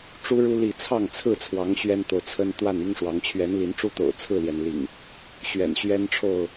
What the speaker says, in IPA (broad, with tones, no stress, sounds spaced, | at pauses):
ʈ͡ʂ u˦ ɻ u˦ l i˥˨ t͡sʰ ɑ˥˨ ŋ t͡sʰ ɹ̩˥˨ t͡sʰ w ɑ˨˦ ŋ ɕ ɥ ɛ˦ n t̪ o˨ ʊ̯ t͡sʰ ə˦ n t̪ w a˥˨ n i˦ ŋ ʂ w ɑ˨˦ ŋ t͡ɕʰ ɥ ɛ˨˦ n l i˨˦ n ʈ͡ʂ u˦ t̪ o̰˨˩ ʊ̯ t͡sʰ ɹ̩˥˨ l j ɛ˩ n l ḭ˨˩ ŋ | ɕ ɥ ɛ̰˨˩ n ɕ ɥ ɛ˦ n ʈ͡ʂʰ o˥˨ ʊ̯